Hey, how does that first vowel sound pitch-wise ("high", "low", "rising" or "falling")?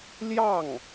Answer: falling